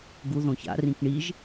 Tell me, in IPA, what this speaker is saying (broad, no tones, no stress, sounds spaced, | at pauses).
ɡ u ð õ ç a̰ r ĩ k ɳ i ʒ